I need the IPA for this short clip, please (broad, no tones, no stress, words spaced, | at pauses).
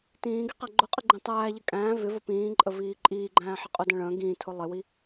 tĩːɡi qæɡ͡ǃʊqʼɪ ɡ͡ǃĩtˤæːʎɪ kʼæ̃ː vɪ vəpĩːǃʼə viːǃʼiːɡ͡ǃæ̃ː ħɪqʼʊdə̃ ɭə̃ː ɡĩːtʰʊ lˠɪwi